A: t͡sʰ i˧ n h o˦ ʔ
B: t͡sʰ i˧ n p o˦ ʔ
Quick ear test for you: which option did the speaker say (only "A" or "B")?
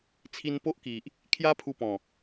B